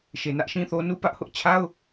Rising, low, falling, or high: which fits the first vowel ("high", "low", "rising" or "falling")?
low